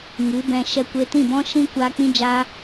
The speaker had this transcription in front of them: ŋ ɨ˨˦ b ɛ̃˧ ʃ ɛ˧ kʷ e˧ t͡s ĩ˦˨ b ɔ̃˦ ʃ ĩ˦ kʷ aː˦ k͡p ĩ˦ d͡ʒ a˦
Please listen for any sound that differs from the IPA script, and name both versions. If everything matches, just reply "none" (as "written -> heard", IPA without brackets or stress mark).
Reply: t͡s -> t